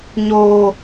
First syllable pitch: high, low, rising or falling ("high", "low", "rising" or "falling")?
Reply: low